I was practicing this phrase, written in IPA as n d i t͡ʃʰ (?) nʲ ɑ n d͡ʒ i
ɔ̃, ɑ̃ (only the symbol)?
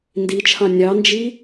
ɑ̃